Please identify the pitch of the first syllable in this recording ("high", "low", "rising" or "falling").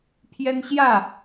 high